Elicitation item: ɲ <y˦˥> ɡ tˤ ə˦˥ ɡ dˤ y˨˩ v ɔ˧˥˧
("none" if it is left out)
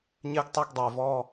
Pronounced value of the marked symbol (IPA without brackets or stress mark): ɪ˦˥